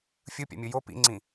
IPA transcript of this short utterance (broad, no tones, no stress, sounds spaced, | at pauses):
fʲ ɯ pʲ a̰ mʲ ɯ j o p ḭ ŋ͡ǀ ĩ